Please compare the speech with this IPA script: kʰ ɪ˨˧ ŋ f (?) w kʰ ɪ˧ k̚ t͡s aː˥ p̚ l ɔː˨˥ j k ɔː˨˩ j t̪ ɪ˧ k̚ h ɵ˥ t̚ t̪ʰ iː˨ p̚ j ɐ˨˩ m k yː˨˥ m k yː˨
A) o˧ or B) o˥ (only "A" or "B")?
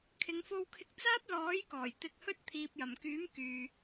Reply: A